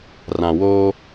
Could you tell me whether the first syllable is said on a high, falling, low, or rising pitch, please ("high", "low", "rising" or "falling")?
low